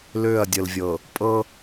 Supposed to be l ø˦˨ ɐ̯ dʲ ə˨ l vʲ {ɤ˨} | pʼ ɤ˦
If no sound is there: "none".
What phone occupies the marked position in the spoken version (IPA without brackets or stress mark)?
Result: ɤ˨